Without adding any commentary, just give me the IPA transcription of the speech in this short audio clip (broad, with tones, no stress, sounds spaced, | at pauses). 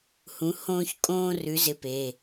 h ũ˨˥ h õː˥ ç kʼ õː˥ r ʉ˨˥ z ɪ˨˥ p e˩˧˩